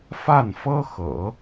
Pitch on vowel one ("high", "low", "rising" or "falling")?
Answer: falling